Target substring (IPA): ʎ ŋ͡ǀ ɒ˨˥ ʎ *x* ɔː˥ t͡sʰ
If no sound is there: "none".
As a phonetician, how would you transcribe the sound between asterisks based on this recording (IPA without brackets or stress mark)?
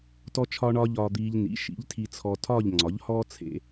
h